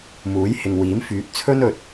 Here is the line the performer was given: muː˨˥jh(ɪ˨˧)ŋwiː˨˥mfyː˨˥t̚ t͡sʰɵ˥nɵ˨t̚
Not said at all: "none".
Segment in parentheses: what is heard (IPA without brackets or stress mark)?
ɪ˨